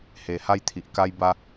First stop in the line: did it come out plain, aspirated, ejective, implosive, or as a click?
aspirated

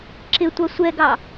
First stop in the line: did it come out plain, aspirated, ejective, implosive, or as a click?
click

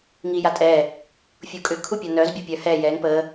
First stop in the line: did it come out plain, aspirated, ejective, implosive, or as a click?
ejective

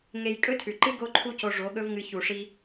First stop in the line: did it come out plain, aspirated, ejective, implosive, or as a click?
ejective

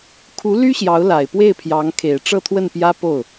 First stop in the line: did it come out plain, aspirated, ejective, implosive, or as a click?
aspirated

